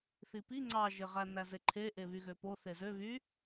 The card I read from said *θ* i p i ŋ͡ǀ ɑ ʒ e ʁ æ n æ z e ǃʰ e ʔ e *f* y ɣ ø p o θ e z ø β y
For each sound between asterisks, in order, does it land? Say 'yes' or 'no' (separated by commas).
yes, no